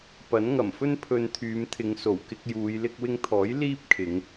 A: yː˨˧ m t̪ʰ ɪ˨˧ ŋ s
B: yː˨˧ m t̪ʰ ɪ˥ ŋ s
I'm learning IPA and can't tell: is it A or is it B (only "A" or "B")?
A